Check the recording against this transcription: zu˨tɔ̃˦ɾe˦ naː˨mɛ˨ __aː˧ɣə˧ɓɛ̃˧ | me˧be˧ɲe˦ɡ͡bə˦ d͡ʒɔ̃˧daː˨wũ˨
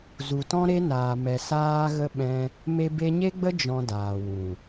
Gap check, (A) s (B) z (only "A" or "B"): A